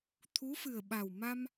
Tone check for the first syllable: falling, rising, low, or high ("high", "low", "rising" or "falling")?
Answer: rising